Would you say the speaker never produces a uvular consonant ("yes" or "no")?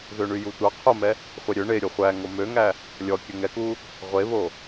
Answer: no